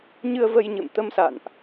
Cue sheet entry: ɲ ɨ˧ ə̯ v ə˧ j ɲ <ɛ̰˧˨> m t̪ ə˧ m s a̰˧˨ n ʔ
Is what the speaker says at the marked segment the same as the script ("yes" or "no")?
no